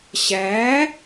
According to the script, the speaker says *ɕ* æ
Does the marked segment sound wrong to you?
no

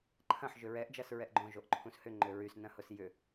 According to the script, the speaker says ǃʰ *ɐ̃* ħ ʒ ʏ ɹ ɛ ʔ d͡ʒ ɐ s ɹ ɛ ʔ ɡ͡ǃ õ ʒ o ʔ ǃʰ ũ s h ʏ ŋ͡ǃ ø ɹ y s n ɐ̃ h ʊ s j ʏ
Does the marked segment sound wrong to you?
no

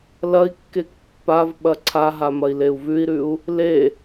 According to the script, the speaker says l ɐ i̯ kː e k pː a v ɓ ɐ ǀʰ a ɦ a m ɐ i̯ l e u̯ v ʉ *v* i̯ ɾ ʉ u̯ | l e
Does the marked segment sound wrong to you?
yes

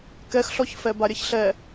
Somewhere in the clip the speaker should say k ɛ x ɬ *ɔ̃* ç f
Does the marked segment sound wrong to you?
yes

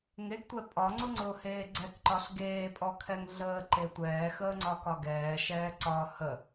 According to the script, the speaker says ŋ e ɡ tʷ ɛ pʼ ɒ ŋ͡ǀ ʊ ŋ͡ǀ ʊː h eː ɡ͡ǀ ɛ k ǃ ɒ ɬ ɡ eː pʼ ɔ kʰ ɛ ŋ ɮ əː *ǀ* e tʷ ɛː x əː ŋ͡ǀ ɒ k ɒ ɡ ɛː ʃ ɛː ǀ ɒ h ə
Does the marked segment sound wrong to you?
yes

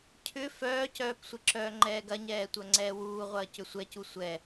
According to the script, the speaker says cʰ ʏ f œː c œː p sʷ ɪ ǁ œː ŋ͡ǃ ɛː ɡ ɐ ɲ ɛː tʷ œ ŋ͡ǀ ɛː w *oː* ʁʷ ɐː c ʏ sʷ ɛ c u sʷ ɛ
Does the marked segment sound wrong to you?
yes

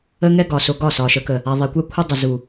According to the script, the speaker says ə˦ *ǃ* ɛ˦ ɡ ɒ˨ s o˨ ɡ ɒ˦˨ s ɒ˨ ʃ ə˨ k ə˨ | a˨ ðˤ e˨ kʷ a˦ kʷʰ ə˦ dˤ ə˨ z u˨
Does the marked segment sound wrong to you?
yes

